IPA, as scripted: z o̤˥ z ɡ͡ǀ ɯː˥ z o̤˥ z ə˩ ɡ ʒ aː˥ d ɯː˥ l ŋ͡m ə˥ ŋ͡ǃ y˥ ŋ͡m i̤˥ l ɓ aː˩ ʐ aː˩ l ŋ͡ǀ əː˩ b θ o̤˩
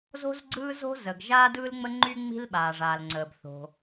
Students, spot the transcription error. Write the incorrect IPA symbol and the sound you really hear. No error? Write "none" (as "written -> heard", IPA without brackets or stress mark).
none